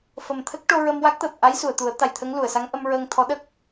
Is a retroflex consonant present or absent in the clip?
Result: present